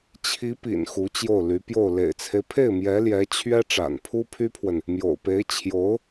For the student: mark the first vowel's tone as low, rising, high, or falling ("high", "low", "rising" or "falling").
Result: rising